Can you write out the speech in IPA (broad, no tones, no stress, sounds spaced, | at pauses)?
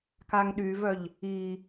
k a ŋ ɗ y v œ ʎ | i